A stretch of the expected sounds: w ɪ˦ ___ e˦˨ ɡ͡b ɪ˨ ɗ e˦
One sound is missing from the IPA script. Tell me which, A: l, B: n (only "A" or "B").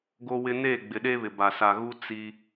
B